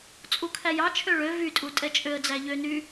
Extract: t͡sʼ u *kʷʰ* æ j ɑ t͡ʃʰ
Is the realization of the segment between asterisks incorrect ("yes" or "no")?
yes